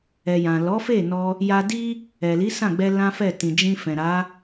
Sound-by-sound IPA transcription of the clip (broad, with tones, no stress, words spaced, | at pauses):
ɛ˨jã˨ lɔ˨˦fe˦˨ nɔ˧ | ja˧di˦ | ɛ˨li˨˦ sã˦˨ɡ͡bɛ˧ lã˦fɛ˦˨ tĩ˨d͡ʒĩ˧fɛ̃˨ ɾa˨˦